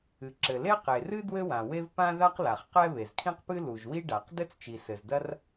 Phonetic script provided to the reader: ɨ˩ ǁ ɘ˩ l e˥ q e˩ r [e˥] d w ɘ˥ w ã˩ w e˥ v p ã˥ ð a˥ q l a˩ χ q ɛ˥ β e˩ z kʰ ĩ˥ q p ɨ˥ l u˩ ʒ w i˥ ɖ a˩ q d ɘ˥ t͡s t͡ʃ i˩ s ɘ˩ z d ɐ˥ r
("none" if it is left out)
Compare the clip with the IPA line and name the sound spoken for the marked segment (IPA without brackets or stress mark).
ɨ˥